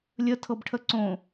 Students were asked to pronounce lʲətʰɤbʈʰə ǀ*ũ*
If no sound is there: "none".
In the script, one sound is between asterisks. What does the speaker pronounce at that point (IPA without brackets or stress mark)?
õ